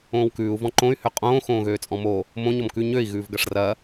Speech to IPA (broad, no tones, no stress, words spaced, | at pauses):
õːwkʉːu̯ vɔ̃ǃõy̯ høqʼõː xõːɣøːt͡sʼɔ̃mo | mõ ɲɔmkʉ ɲøi̯ ɣʉːvɡɐʂrɐ